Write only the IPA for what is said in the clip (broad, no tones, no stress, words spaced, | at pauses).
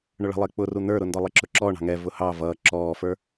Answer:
ɳʊɭə̤lˠɪː k͡pʊru n̪ə˞ɾʊ ndɔlˠiǁʊǁɔː ɳɑ̤ŋɛ vʊhɑ vʌː ǁɔːfə˞